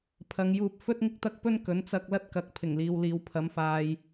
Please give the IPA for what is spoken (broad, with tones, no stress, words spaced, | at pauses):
pʰɐ˨˧ŋjuː˧p̚ fɵ˥t̚ŋɪ˥k̚t̪ɐ˥k̚ pɵ˥n kɵ˨˥n t͡sɐ˧k̚ lɐ˥t̚kɐ˨˥k̚ pʰɪ˨˩ŋliː˨w liː˨wpʰɐ˨˧mfaː˨j